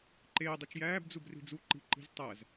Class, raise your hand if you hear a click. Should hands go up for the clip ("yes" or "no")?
yes